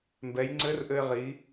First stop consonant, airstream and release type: plain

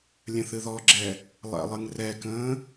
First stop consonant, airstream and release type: click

